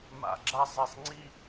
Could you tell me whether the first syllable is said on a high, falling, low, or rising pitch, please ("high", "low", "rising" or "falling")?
falling